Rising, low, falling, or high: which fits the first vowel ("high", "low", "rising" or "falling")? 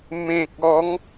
low